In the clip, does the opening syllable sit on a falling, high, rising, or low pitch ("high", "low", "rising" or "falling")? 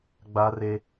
high